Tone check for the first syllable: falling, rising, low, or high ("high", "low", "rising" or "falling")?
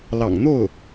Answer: low